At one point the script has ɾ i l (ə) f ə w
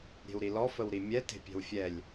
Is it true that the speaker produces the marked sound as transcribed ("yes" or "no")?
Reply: no